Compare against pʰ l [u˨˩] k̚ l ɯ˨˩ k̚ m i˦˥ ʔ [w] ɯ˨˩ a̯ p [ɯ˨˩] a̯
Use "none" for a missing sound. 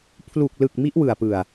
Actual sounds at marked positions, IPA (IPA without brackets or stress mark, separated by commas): u˨˩, w, ɯ˨˩